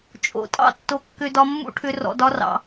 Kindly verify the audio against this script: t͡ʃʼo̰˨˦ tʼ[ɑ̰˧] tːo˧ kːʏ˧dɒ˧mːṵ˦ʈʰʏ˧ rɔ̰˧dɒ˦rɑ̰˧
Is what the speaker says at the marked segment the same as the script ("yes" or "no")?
no